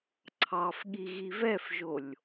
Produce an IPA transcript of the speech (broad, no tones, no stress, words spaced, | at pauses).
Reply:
ǀʰɑfɠi ɣivɛfʒolʲ